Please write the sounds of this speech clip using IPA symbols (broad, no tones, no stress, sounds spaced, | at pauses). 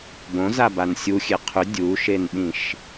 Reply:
b õ z a b a n sʲ u xʲ e qʰ ʏ dʲ u ʃ e n ɓ ĩ ʃ